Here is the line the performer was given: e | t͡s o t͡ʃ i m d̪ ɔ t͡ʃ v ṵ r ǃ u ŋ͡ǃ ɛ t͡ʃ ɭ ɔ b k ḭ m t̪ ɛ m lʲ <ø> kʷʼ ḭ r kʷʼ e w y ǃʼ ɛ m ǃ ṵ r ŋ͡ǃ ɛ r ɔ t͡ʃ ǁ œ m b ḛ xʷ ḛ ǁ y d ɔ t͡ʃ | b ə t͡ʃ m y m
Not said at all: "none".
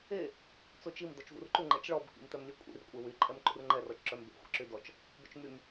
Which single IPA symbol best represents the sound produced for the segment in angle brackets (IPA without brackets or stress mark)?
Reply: ø